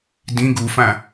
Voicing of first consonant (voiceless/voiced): voiced